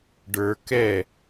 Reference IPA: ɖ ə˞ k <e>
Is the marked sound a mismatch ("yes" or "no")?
yes